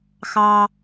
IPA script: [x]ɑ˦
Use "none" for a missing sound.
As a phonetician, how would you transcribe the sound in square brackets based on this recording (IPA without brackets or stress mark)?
x